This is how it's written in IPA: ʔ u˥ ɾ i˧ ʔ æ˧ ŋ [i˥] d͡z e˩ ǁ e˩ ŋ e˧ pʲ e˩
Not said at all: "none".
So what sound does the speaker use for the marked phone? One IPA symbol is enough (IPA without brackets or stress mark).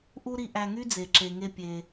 y˥